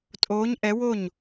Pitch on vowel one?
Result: rising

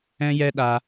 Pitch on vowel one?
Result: high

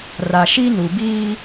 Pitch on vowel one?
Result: low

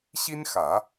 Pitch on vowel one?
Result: high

